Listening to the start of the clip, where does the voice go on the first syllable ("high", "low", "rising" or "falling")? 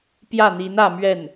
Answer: falling